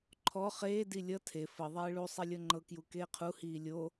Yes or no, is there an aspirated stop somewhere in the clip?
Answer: yes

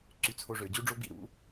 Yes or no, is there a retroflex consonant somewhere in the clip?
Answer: yes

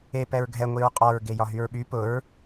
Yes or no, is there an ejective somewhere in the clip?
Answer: yes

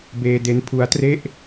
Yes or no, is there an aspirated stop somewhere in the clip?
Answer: yes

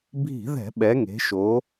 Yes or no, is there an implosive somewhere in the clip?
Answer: yes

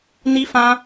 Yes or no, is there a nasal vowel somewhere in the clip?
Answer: yes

